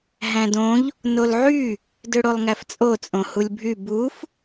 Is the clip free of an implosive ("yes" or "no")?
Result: yes